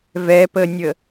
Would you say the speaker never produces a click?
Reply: yes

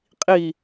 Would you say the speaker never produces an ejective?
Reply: no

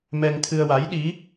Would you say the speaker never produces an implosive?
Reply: no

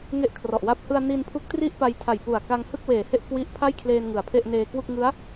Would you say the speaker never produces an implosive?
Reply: yes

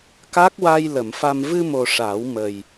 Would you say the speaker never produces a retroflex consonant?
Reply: no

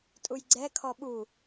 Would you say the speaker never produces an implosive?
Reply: no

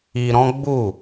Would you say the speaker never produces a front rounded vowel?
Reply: yes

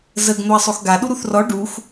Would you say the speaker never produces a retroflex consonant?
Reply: no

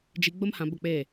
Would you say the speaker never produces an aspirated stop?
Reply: yes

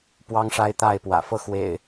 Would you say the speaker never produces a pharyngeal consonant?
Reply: yes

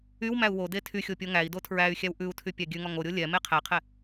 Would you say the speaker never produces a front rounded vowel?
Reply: no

